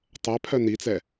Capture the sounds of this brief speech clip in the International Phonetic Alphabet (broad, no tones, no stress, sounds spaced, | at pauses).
tˤ ɛ pʰ œ n i t͡s ɛ